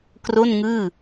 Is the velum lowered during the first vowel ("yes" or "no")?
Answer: no